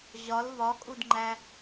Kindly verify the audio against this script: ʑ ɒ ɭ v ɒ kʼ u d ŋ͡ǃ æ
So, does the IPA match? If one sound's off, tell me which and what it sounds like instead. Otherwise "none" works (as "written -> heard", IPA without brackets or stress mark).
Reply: ɭ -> l